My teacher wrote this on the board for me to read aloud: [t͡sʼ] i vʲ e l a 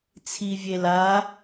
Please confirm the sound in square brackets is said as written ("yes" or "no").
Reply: no